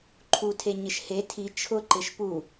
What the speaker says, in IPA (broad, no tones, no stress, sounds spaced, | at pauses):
ǃʰ u tʰ e ɲ ɪ ʃ h e tʰ i t͡ʃʰ ʊ ǃ ɪ ʃ p u